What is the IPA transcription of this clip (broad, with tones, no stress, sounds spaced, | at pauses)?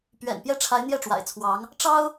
p ɥ ɛ̰˨˩ n p j ɛ˥˩ ʈ͡ʂʰ a˧˥ ɪ̯ n̪ j ɛ˥˩ ʈ͡ʂ w a̰˨˩ ɪ̯ t͡sʰ w ɑ˧˥ ŋ | ʈ͡ʂ ɑ˥ ʊ̯